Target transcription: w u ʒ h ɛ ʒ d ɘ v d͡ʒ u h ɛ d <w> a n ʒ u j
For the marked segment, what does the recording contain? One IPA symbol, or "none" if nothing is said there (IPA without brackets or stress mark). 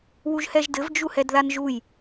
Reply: ð